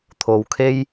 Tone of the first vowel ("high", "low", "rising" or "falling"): low